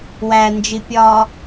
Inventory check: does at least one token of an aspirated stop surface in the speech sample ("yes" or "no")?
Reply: no